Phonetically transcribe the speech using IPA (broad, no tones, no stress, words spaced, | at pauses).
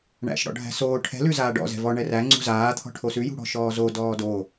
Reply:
ɳæ̰ʃ ɽɔ̰ɖʱæ̤soː ʈʰɛ̤ lʉzaːɖɔ̰ zɛ̤vɔ ɳɛræ ŋ͡ǀṳzaː t̪ʰɔ̤ʈʰosʉ jṳɽɔ̤ʃɔːzo dɔːdo